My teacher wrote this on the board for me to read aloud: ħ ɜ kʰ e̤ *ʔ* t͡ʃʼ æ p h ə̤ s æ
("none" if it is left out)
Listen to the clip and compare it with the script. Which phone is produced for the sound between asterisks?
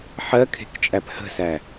k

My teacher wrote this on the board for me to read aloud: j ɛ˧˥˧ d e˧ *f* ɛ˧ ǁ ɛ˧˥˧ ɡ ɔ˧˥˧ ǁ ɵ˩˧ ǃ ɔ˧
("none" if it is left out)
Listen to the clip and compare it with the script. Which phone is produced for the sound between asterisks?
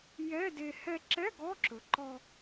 h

